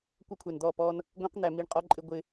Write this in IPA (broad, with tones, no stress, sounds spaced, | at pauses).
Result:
kʷ ʌ˦ kʷʰ ɛ˨ n d̪ ɔ˦˨ p ɔ˦ n | ɡʷ ẽ˦ q n̪ æ˨ m i˦˨ ɳ qʼ ɔ˦ ǃʼ ɪ˦ ɡʷ ɪ˦